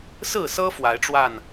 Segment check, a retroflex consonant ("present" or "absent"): present